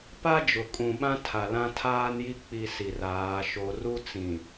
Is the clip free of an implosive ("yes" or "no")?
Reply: no